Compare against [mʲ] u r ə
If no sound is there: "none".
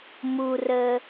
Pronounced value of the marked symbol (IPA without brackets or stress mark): m